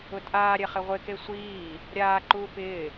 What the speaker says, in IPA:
ʊ tʼ aː ɾʲ ɛ χ ɪ ʁʷ ɪ k e sʷ iː | ɾʲ aː ǃ uː p ɪː

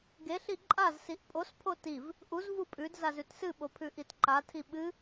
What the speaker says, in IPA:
ɡ e ɬ i ǃʼ a z s i ʔ pʼ o s pʰ o t i v | ʔ u z v u pʼ ʉ d z a z ʉ t s ɨ ɓ o pʰ ʉ ʔ i t ǃ a tʰ i ɓ ɨ

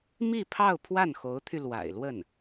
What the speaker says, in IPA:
m i˥˧ pʰ ɑ˥˧ ʊ̯ pʰ w a˥˩ n x o˧˥ ʊ̯ t̪ʰ y˧ l w a̰˨˩ ɪ̯ l w ə˥˩ n

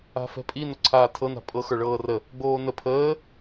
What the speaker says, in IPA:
a̤ f ɛ̤ pʼ i n o ǀʰ aː tʰ ɤ n a̤ pʼ ɤ x ə˞ ɭ ɤː r ə | ɡ͡b oː n ə pʰ əː

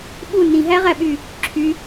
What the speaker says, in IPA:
ɓ u n ĩ ɦ æ ʁ æ ɓ y | ǁʰ y

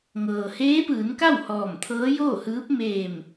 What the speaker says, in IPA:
ŋ ɤː˩ h eː˧˥ p ɯː˩˧ n k a˥˨ w h ɔː˧˩ m t̪ʰ ɤː˧˥ j oː˥˨ h ɯː˧˥ p̚ m eː˧˩ m

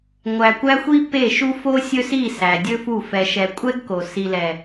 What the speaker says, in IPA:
ŋʷ æ˨ kʷ æ˦ xʷ i˦ p e˦˨ ʃ u˦ f o˦ sʲ ɵ˦ s i˦˨ s æ˨ dʲ ɵ˦ f u˦˨ f ɛ˨ ʃ ɛ˨ kʷʼ ɛ˦ ɡ k o˨ s i˨ l ɛ˨

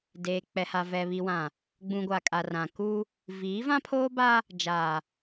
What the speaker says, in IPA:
d eː˨ k͡p ɛ˨ h a˨ v ɛ˨ β i˨ w ã˨ | ɡ͡b ũ˨ ɡʷ a˨ kʼ a˨ r ã˨ k u˦ | v iː˨˦ v ã˦ pʰ oː˦ b a˦ | d͡ʒ a˨

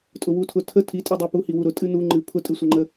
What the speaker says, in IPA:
tʼ ʊ w u tʰ ʊ tʰ ə tʰ i tʼ i dˤ u p u h i w u ɾ ʊ tʼ ɨ n u ŋ͡ǃ ɨ pʰ ʊ tʼ ɨ sʷ ə ŋ͡ǃ ə

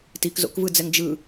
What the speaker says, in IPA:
t i k z o̰ k v ɯ d͡z ɛ ŋ d͡ʒ ɯ

